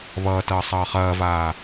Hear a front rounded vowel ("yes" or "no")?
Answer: no